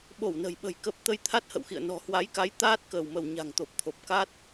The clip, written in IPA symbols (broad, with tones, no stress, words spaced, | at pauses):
ɓo˧˩wnə̤˨˩jɓə̤˨˩j kə˦˥p̚ t̪ə˧j t̪ʰa˦˥t̚hə̰˧˨wxḭ˧˨ə̯ nɔ̤˨˩hwa˨˦jka˨˦j t̪aː˦˥t̚kəː˧˩wmə˧˩w ɲa̤˨˩ŋt̪o˨˩p̚t̪ʰo˨˩p̚ ka˦˥t̚